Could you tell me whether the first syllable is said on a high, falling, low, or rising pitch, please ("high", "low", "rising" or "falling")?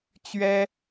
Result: high